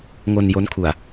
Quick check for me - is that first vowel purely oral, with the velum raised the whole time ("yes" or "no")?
yes